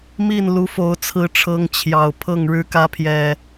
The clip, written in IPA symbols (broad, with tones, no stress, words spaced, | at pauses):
mi˥˨n lu˨˦fo˨˦ʊ̯t͡sʰɹ̩˨˦ʈ͡ʂʰɤ˨˦ŋ t͡ɕʰjɑ˨˩ʊ̯pʰɤ˥˨ŋ ɻɻ̩˨˦kä˨˦pʰjɛ˨˩